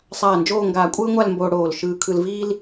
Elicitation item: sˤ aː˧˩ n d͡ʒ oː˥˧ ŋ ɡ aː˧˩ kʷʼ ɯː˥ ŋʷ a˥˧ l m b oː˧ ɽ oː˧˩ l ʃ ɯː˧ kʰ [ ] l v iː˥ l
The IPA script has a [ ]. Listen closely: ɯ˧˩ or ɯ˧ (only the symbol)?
ɯ˧